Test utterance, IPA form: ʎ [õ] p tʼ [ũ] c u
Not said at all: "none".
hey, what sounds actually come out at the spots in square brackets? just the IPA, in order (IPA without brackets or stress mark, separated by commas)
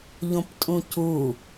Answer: õ, ũ